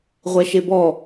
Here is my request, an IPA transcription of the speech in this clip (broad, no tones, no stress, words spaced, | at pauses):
ʁʷɛʃebɔ